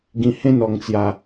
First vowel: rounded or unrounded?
unrounded